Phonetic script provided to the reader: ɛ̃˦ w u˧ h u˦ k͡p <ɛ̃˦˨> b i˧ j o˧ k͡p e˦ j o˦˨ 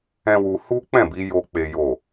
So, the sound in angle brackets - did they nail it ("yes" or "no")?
yes